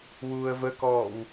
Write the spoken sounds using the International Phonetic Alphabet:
w uː ə̯ v ə k ɔː w

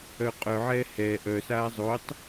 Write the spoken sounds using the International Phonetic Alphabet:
œ qʼ œ ʕ ɛː h ɛ ʔ œ s aː zˤ o tˤ

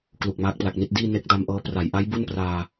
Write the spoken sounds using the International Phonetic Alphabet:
k l u˨˩ k̚ m aː˦˥ k̚ p l a˨˩ k̚ n i˥˩ t̚ d iː˥˩ n e˦˥ k̚ d a˧ m ʔ ɤː˦˥ p r a˩˦ j ʔ a˦˥ j b u˥˩ n p r aː˧

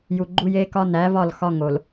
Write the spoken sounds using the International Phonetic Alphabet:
j u˨ ɡ͡ǃ u˦ j eː˦ k ɒ˦ n æ˨˦ v ɒ˦˨ l x ɒ˦ ŋ o˨ l

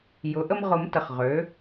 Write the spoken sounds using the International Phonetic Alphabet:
j ʊ˩˥ ʔ ə˦ m ʁ ʊ˨˩˦ m t ə˨ χ ʁ ø˩˥

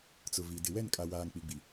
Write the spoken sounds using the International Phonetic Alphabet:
t͡s ʊ˨ v i˨ d ɪ˨ w ɛ˦˨ n kʼ a˨ w aː˨ ŋ k͡p i˨ ɡ͡b i˨

